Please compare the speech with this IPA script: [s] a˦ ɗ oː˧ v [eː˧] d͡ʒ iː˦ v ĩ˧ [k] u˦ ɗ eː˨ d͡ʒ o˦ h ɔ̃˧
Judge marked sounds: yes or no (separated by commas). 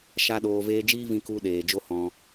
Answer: no, yes, yes